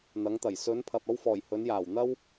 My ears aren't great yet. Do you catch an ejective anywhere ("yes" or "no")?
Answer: no